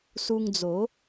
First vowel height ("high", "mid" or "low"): high